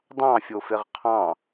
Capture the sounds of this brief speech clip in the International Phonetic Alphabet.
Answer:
dˤ ɑ̃ fʲ o f e ʁ qʰ ɑ̃

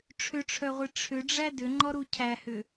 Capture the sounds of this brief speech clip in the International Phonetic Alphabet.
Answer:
ʈ͡ʂʰ ʏ ʈ͡ʂʰ œ ʁʷ i ʈ͡ʂʰ ʏ ɖ͡ʐ æ d ʏ ŋ͡ǃ ɔ ɾ u cʰ æ h ʏ

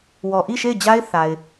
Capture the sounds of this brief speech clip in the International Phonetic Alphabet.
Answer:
w ɔ˨ ʔ i˦˨ ʃ e˦˨ ɪ̯ d͡ʑ a˦ ɪ̯ θ a˨ ɪ̯

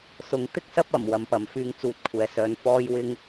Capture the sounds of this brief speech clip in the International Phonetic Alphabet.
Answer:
s ʊ˨˧ ŋ t̪ ɪ˧ k̚ s ɐ˧ p̚ ɐ˨˩ m w ɐ˨ m p ɐ˨ m f yː˧ ŋ t͡s uː˨˥ t̚ kʷʰ ɛː˨ s œː˨˧ n f ɔː˥ j w ɪ˥ ŋ

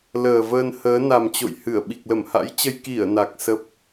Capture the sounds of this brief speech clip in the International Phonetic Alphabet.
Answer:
l əː˨˩ v əː˧ n h əː˨˦ n a˨˩ m t͡ɕ o̰˧˨ j h ɨ˧˩ ə̯ ɓ i˨˩ k̚ l ə˧˩ m h a̰˧˥ j t͡ɕ ə˧ j k i˧˩ ə̯ n a˨˩ k̚ s ə˦˥ p̚

